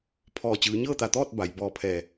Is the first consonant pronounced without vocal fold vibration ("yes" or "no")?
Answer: yes